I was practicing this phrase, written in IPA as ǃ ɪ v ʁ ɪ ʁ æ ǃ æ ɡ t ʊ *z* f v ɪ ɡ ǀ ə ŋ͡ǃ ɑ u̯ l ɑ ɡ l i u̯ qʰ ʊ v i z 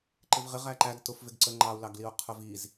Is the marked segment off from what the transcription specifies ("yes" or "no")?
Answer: yes